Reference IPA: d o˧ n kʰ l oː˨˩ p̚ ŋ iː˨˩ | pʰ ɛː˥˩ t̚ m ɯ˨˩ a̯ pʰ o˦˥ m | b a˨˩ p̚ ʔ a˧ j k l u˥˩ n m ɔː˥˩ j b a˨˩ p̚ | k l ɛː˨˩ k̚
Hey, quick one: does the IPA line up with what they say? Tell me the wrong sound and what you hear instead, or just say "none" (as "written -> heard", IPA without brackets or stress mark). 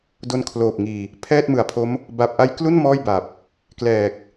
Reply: none